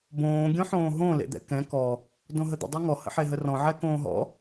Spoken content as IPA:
b õː ɡʲ õ ħ õː ɦ õ l ḛ d̪ ɛ̰ k ɛ̃ k ɔ | d õ ɦ ə d̪ ə̰ dˤ ɤ ŋ ɔ h ə̰ ħ e ɦ ə r ɔ̃ ʕ ɛ k õː ɦ ɔ̰

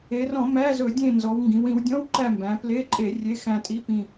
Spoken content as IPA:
e˩˧ r ɔ̃˧˩˧ m æ˧˥˧ z ɵ˧˩˧ dʲ ẽ˦˨ n z ɔ˩˧ w ŋ ɡ ĩ˩˧ w ĩ˩˧ w dʲ ɔ̃˧˥˧ w ǃ æ˦˨ m b æ̃˩˧ p l e˧˥˧ ǃʼ e˧˩˧ rʲ e˧˥˧ x æ̃˦˨ tʼ i˧˥˧ p ĩ˦˨

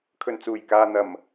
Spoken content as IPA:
kʰ ɵ˨˩ n t͡s uː˨˩ j k aː˨ n̪ ɐ˨˩ m

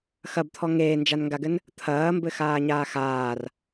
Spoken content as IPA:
x ɐ b t̪ʰ ɔ ŋ eː n d͡ʒ a n ŋ ɡ a ɡ ɘ n | t̪ʰ ɐː m b ɘ x aː ɲ aː x aː r

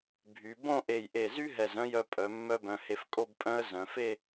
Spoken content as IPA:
bʱ y˩˧ b õ˥˧ ʔ e˧˩ j ʔ e˧˩ z y˥ ɦ ɛ˧˩ z œ̃˥˧ j œ˧ pʼ œ˩˧ mː œ˥ b œ̃˧ h e˧ f kʼ o˥˧ b pʼ œ̃˥ ə̯ z œ̃˩˧ f e˥˧

